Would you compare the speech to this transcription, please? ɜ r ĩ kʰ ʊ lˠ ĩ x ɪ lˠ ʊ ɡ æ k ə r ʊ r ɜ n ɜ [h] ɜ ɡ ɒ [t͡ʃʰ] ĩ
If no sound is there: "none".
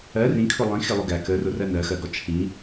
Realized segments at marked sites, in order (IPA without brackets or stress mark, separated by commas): x, t͡ʃʰ